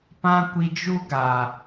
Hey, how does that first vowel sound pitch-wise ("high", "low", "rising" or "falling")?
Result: high